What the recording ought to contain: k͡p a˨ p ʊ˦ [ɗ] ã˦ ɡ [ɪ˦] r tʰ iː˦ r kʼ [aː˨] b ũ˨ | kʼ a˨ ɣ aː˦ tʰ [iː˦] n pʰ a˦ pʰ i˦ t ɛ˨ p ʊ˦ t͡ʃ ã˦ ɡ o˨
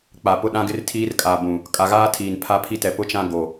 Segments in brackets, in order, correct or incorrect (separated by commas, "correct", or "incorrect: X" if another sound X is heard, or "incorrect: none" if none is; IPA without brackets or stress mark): correct, correct, correct, incorrect: iː˨